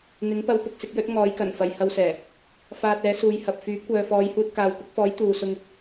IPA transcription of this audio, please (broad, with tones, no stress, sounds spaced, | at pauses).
n̪ ɪ˨˥ ŋ p ɐ˧ w p ʊ˨ k̚ s ɪ˧ k̚ j ɵ˨˥ t̚ ŋ ɔː˨˥ j k ɐ˨˩ n f ɐ˨ j h ɐ˧ w s ɛː˨˩ | f aː˧ t̚ ɛː˨˥ s uː˨˧ j h ɐ˨ p̚ f yː˨˥ p̚ kʷ œː˨ f ɔː˨˧ j h uː˧ t̚ k aː˨ w k ʊ˨˥ k̚ f ɔː˨˥ j t̪ uː˨ s ʊ˧ ŋ